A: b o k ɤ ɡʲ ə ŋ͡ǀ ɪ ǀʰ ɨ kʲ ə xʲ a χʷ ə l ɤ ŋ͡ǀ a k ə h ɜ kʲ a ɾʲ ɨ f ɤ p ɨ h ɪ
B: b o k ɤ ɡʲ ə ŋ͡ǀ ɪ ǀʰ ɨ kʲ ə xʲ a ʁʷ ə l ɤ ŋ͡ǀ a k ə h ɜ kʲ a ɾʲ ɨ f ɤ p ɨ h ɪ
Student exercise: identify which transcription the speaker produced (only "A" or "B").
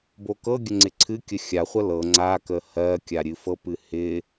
A